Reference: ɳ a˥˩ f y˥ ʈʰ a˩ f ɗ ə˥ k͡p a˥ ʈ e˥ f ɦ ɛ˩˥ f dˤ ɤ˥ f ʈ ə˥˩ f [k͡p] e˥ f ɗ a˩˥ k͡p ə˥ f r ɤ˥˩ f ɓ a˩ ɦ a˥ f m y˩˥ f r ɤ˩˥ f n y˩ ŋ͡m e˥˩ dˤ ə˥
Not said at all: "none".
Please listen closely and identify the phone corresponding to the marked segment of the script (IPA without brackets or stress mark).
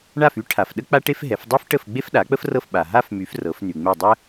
ɡ͡b